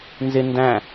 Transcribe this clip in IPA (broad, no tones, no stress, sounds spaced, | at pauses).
n z ɪ n d æ̃